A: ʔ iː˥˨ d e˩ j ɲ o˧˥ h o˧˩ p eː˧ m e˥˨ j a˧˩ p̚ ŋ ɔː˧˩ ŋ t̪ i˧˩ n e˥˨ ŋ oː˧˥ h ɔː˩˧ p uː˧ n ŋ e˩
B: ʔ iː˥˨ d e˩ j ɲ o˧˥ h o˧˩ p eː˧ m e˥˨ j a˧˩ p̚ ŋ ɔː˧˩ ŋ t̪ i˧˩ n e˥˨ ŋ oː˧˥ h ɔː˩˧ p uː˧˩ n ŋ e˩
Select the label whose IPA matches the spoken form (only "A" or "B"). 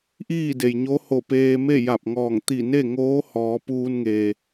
A